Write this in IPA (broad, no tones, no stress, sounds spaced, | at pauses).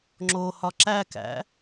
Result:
ŋ͡ǁ o h ɒ ǁ æ k æ̰